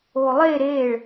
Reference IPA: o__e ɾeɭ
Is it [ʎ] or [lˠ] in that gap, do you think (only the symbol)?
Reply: lˠ